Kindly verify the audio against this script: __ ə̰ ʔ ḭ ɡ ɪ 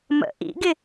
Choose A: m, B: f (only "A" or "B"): A